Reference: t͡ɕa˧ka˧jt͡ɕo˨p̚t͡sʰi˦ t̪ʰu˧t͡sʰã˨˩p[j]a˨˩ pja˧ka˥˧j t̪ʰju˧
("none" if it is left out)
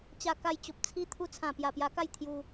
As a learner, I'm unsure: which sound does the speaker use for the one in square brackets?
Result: j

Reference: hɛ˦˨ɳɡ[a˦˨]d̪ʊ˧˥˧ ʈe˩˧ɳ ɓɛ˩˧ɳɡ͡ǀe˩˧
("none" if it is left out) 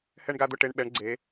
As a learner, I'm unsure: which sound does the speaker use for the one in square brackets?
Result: a˦˨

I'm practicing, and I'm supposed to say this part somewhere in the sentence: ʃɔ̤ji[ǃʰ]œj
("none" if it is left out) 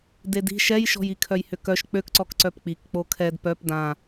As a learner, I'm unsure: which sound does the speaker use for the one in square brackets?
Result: kʰ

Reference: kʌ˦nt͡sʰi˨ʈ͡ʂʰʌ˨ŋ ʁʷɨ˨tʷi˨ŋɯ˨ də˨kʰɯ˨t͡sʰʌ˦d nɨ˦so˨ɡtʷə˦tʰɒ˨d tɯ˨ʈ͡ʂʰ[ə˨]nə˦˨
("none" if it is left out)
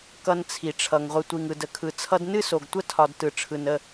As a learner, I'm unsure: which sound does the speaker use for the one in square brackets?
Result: ɯ˨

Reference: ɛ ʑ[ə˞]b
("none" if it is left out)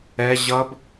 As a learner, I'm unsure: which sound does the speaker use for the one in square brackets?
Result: ʌ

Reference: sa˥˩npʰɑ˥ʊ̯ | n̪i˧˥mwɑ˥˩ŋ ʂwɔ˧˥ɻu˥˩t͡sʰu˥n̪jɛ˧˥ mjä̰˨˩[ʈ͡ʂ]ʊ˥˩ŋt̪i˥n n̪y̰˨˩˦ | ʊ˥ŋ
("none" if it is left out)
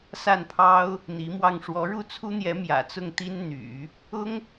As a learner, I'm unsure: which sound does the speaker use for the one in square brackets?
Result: t͡s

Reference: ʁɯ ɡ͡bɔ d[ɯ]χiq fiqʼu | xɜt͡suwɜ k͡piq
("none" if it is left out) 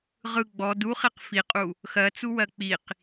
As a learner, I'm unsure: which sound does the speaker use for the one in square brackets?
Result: u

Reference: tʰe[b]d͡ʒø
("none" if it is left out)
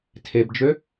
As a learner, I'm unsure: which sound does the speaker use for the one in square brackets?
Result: b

